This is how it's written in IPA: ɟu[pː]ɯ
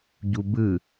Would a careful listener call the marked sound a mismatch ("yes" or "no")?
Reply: yes